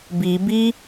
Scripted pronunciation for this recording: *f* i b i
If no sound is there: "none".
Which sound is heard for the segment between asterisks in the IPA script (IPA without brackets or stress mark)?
b